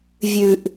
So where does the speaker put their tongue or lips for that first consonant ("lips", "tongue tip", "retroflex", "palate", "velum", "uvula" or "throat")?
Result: lips